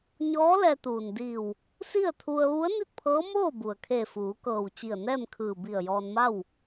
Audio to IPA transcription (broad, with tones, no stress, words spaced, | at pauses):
ɲɔː˧˥lɛː˧t̪uː˩ndiː˧˩w | si˥˨ə̯t̪ʰu˧ə̯ ʋu˧˥ə̯ni˥˨t̚pʰɤː˧˥moː˥˨ bu˩ə̯kʰe˧˩ fuː˩˧kɤː˧˩wt͡ɕi˧˩ə̯ nɛː˥˨mkʰɯː˧˩ bi˧˩ə̯jɔː˧nma˥˨w